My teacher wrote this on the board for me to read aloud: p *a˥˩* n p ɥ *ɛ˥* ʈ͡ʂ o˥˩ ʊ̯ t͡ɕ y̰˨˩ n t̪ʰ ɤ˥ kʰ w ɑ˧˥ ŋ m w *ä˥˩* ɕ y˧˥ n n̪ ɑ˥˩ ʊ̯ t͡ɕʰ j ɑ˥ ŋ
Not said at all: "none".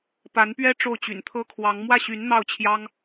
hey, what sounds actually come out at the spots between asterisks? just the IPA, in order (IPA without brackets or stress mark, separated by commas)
a˧˥, ɛ˥, ä˥˩